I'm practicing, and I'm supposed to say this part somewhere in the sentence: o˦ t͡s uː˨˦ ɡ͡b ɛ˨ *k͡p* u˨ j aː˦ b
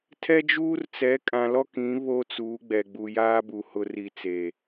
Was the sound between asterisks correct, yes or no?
no